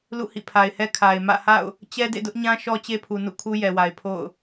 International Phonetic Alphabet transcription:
l ṵ˦˨ h ḭ˦˨ pʰ a˨ ɪ̯ h ɛ˦ kʰ a˨ ɪ̯ m ä̰˦˨ h a̰˦˨ ʊ̯ | t͡ɕ ɛ˦ d ḛ˦˨ d ʊ˦ ʔ ɲ ã˦ ʃ ɔ˦ t͡ɕ e˦ pʰ u˨ n ṵ˦˨ kʰ u˦ j ɛ˨ w a˨ ɪ̯ pʰ o̰˦˨ ʊ̯

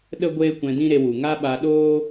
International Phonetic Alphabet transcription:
ɗ ə˦ ɡʷ eː˦ kʷ ɛ̃˧ d ĩ˦ ɾ e˧ w u˨ ŋ a˦ ɓ a˧ ɗ oː˦

